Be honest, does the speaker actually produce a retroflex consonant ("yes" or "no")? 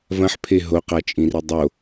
no